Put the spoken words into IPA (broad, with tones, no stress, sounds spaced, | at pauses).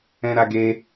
ɛ̃˦ ɾ a˦ ɡ e˦